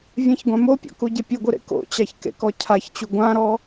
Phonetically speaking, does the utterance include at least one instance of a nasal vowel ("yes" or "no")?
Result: yes